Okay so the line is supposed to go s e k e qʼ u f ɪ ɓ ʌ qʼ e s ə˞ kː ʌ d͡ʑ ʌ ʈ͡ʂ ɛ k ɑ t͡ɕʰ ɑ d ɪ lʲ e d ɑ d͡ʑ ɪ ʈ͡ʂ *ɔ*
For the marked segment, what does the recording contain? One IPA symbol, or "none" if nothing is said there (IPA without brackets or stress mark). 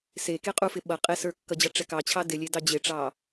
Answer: ɑ